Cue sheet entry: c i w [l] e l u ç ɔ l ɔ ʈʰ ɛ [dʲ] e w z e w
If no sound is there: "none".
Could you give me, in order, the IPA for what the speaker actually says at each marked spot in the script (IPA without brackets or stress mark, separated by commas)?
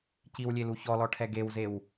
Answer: lʲ, ɡ